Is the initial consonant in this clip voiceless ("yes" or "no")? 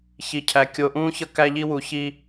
yes